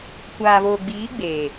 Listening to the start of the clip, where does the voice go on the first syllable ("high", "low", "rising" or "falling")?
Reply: low